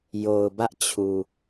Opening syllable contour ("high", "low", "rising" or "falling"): low